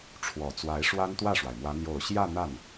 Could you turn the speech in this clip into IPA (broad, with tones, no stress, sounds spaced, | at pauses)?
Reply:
ʈ͡ʂʰ w ɔ˨˩ t͡s w a˧˥ ɪ̯ ʂ w a˥ n t̪ w ä˥˩ ʂ w a˩ ɪ̯ m w ä˧˥ n̪ j o˨˩ ʊ̯ ɕ j ä˥˧ n̪ a˥˩ n